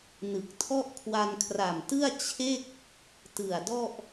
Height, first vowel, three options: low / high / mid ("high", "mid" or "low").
high